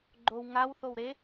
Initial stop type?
click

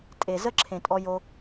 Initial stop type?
ejective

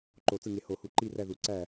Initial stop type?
click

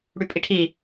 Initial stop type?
ejective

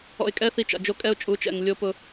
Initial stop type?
ejective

